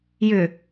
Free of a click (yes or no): yes